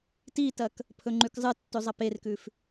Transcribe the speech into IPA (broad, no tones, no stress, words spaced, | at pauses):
titɐk | pʰɵŋ͡ǃʉkzˤɨtːʉ zˤɐperkʉf